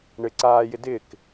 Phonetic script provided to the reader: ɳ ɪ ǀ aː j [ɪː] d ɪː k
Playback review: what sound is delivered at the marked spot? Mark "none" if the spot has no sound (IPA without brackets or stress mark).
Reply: ɪ